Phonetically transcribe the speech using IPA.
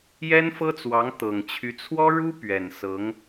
jɛ˥nfɤ˥t͡swɑ˧˥ŋ t̪ɤ˨˩ŋt͡ɕʰy˧˥ t͡sʰwɔ˥ ɻu˥ pɥɛ˨˩nsɤ˧˥ŋ

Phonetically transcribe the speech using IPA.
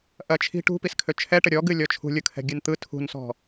ʔɐt͡ʃʰi̤ ʈṳpiskʰø t͡ʃʰɛʈə ɾʲɔɡɨ lʲɔt͡ʃʰṳlʲɯ kʰɛ̤ɡʲɨnt̪ɯ tʰṳnsɔ̤

